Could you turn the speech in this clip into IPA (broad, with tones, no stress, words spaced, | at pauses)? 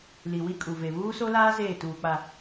li˨wi˦kʼu˨ve˨ βuː˦so˦laː˦ zeː˦˨tuː˨k͡pa˨